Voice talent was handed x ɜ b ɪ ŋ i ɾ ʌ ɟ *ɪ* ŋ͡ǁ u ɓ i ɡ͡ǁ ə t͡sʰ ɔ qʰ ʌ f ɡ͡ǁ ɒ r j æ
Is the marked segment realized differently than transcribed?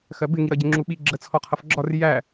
no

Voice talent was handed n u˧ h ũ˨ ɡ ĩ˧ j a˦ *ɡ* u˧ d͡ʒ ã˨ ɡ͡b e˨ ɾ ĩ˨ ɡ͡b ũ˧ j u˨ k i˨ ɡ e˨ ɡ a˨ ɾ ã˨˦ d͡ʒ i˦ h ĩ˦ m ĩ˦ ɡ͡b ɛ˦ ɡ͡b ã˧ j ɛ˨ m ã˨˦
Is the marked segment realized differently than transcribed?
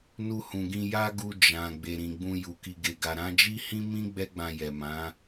no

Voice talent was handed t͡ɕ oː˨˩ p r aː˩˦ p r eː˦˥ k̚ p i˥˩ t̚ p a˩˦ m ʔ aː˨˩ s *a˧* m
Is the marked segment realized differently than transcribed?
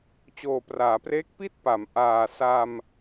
no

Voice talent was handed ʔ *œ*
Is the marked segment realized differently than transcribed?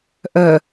no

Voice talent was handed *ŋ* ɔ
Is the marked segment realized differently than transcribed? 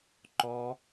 yes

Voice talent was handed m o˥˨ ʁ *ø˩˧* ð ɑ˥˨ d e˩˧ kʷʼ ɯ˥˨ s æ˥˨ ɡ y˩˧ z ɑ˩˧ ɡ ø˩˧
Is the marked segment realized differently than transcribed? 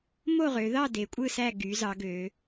no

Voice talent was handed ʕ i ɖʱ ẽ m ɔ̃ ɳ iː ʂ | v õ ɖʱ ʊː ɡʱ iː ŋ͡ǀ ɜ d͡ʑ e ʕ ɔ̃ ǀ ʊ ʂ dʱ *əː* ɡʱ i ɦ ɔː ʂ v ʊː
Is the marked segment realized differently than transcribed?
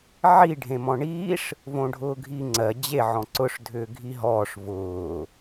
yes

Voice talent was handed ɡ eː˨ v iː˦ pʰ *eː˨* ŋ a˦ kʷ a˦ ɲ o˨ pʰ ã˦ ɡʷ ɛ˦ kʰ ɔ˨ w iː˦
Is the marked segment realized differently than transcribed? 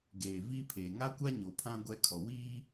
no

